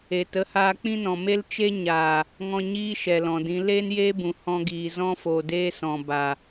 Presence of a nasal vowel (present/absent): present